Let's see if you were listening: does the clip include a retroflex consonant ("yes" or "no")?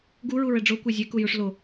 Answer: yes